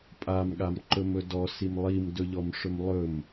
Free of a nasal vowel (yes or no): yes